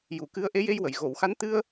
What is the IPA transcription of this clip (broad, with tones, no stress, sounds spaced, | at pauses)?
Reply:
j u˨˩˨ k ɨ˧˥ ə̯ ʔ e˧˥ j e˧ j w ə˨˩˨ j ɣ o˨˩˨ w x a˧˥ n t̪ ɨ˧ ə̯